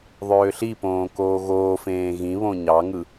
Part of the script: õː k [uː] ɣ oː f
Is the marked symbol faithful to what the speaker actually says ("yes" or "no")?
no